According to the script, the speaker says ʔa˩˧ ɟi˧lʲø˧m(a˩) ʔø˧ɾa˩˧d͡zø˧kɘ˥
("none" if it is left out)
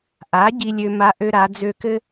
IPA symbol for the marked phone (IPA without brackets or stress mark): a˧˥